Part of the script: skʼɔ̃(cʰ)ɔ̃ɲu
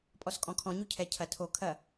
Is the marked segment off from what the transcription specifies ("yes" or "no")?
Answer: yes